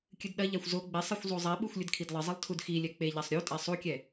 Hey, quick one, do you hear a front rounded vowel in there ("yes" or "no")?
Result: no